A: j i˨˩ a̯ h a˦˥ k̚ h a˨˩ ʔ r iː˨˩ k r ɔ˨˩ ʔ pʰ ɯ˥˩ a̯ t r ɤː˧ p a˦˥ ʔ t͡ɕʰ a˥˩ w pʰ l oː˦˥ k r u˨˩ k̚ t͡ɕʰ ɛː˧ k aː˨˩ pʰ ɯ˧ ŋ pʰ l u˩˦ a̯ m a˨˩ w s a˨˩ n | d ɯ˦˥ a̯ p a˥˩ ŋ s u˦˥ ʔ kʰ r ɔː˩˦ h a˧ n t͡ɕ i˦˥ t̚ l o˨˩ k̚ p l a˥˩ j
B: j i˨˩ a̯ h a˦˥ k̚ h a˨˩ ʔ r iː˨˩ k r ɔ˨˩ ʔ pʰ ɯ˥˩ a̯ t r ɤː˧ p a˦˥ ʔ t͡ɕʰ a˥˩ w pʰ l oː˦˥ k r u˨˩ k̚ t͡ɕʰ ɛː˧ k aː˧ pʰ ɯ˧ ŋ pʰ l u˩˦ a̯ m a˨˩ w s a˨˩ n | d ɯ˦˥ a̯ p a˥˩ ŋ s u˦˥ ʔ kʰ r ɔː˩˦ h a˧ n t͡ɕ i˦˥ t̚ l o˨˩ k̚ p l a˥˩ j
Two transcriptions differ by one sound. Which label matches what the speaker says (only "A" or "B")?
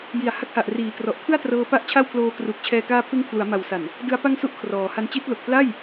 B